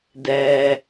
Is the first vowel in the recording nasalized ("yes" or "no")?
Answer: no